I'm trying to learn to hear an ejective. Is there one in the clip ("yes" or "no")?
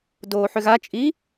yes